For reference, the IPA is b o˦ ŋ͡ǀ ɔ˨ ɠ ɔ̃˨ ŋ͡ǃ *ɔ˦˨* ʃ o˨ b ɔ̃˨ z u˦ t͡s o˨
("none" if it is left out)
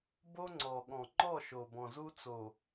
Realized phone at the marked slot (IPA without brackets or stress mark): ɔ˦˨